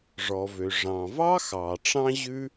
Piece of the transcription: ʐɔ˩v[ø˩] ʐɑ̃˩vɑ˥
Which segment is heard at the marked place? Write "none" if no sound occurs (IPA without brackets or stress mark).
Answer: ø˩